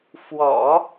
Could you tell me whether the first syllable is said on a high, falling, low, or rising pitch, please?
low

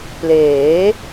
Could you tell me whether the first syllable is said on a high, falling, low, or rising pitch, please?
rising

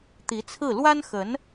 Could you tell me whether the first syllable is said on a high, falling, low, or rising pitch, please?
rising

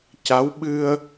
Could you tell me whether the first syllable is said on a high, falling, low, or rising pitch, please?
rising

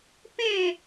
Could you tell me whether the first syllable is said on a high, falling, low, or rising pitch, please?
falling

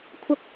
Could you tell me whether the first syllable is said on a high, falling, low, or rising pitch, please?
high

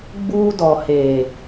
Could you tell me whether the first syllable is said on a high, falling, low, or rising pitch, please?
high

